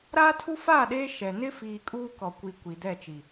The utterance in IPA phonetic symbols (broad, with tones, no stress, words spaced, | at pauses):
ɾaː˦tʰu˦ faː˦˨ɗeː˦ ʃɛ˨ nɪ˦fiː˨ kʼuː˦kɔ˨kʷi˨ kʷi˨dɛ˦˨ t͡ʃi˨